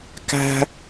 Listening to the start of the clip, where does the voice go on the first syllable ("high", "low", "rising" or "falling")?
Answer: high